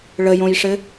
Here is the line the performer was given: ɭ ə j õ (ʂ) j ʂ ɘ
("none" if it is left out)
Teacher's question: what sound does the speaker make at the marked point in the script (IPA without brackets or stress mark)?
none